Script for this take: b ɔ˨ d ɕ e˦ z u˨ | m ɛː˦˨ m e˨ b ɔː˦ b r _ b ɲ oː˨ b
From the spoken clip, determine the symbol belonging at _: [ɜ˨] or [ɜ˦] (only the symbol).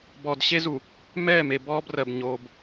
ɜ˨